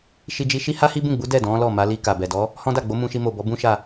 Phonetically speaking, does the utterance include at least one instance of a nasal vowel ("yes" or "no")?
yes